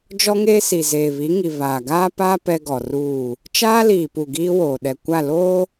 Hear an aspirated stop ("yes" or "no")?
no